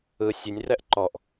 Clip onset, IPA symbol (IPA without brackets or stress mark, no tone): ɯ